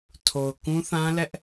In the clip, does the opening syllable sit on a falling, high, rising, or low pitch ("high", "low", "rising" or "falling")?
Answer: low